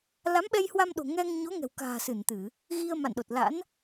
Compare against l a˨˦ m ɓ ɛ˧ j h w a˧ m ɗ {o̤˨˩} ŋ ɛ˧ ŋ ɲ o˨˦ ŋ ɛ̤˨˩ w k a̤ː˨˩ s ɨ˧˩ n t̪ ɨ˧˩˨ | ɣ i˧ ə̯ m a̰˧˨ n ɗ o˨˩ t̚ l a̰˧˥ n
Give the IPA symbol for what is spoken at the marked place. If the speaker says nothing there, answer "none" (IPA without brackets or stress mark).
o̤˨˩